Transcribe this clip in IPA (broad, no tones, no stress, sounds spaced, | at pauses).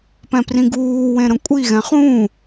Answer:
p ɛ̃ p r ĩ ɡ uː w ẽ ɾ ə̃ kʷʼ i ɣ ɛ̃ χ ũ